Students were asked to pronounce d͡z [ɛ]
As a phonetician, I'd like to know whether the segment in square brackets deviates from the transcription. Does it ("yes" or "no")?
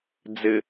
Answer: yes